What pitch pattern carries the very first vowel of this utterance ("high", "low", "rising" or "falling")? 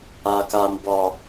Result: low